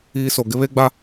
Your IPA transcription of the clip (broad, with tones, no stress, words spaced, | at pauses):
iː˦so˨ ɡɪ˦βe˦ɡ͡ba˦